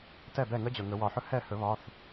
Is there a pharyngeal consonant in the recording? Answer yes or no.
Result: yes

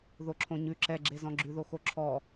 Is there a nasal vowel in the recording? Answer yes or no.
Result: yes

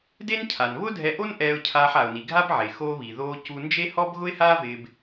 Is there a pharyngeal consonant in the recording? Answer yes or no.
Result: yes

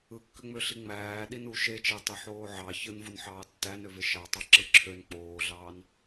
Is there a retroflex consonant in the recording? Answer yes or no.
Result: no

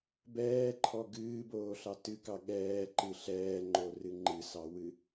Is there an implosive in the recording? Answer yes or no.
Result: yes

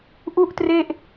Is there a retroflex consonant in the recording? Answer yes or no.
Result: no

